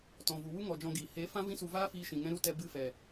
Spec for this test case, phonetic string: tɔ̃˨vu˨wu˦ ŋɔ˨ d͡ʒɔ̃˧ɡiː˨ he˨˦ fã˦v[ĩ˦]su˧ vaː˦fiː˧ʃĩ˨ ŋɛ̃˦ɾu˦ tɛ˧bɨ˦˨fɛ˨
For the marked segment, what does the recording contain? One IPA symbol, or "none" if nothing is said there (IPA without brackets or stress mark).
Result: ĩ˦